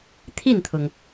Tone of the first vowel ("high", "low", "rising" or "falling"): falling